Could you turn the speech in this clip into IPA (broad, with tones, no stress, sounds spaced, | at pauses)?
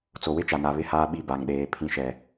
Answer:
t͡s o˨ w ɪ˦ t͡ʃ a˨ n a˨ β ɪ˨ h aː˨ ɓ i˨ b a˨ ŋ ɗ eː˨ pʰ ĩ˨ ʃ ɛ˨